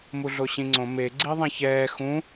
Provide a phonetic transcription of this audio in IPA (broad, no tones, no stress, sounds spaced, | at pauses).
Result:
m u ɮ o ɕ ĩ ŋ͡ǀ õ m e ɡ͡ǀ i ðˤ ɛ̃ ç ɛː x ũ